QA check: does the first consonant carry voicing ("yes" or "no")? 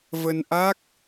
yes